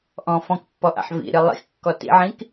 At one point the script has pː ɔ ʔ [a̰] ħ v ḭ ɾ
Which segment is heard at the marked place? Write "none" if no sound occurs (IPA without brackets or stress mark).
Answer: a̰